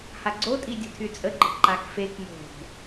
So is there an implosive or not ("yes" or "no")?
no